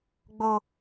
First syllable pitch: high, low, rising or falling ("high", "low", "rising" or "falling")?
low